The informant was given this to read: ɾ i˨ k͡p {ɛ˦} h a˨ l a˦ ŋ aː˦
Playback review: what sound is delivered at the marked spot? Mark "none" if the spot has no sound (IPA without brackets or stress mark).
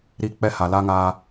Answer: ɛ˦